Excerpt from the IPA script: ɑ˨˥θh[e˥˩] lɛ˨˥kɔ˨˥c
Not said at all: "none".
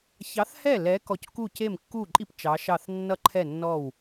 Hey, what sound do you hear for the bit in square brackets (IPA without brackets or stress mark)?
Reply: ɛ˥˩